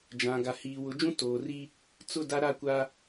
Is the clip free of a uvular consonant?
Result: yes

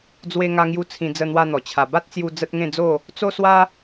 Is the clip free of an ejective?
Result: yes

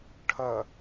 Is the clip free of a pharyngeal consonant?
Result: yes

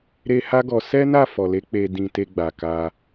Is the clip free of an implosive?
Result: yes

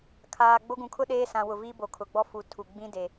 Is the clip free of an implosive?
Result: no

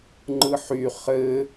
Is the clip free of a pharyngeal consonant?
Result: no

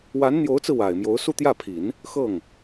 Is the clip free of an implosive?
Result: yes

